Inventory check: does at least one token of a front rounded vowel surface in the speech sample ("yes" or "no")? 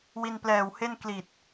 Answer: no